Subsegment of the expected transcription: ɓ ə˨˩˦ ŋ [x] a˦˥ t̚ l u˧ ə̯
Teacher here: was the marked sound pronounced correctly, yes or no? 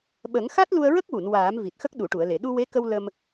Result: yes